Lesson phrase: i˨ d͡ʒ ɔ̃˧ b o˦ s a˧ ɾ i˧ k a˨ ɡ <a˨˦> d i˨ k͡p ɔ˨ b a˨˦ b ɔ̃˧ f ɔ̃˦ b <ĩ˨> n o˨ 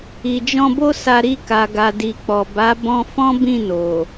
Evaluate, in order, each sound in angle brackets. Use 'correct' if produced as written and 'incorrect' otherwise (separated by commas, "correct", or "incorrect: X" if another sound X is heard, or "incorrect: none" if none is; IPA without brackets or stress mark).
incorrect: a˨, incorrect: ĩ˦˨